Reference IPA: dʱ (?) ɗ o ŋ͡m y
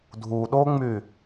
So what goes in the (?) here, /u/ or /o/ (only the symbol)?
u